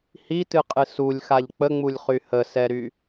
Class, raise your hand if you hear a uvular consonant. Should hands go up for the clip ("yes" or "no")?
yes